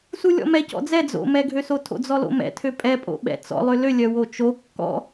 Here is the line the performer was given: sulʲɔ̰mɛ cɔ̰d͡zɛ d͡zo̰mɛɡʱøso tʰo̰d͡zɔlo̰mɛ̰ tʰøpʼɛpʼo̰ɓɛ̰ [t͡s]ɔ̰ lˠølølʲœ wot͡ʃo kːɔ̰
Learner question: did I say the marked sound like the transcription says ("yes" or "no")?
yes